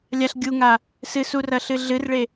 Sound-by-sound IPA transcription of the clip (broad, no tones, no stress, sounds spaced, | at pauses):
lʲ a ɬ ɡʲ u ŋ a | s ɨ s u r ɐ ɬ ɨ ɮ ɨ r ɭ e